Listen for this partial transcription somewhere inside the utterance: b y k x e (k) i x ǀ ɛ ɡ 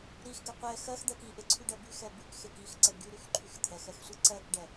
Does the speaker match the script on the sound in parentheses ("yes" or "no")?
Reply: yes